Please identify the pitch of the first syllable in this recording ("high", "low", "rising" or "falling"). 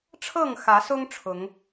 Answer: falling